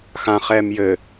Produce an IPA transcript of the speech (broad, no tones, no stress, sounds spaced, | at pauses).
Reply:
x ã χ ɛː m j ɘ